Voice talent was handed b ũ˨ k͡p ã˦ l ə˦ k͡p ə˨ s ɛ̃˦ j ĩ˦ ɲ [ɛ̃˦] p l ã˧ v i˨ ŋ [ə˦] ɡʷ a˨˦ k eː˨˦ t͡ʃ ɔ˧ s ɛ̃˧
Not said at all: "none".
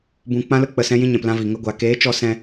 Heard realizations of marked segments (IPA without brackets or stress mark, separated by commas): ɛ̃˨, ə˦